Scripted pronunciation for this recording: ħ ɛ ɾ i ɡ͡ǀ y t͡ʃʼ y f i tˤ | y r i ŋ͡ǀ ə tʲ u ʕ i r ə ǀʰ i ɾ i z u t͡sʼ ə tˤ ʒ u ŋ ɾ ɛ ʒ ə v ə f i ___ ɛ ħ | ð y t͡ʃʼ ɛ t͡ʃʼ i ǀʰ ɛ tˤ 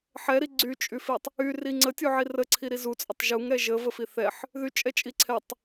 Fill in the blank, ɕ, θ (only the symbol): θ